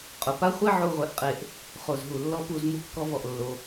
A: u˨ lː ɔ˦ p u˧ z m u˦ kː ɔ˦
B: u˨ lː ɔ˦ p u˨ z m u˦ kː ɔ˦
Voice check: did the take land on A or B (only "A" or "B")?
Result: A